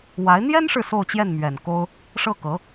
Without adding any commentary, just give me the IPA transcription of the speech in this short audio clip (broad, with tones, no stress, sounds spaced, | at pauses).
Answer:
w a˧˥ ɪ̯ n̪ j ɛ˥ n ʂ ɻ̩˨ s o˥˧ ʊ̯ t͡ɕ j ɛ˥˩ n m ɥ ɛ˨˩ n k o˥ ʊ̯ | ʂ ɤ˥˩ k ɤ˧˥